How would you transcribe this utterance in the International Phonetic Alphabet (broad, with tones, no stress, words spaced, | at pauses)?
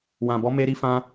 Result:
wã˨bɔ˨˦me˧ ɾi˧fã˧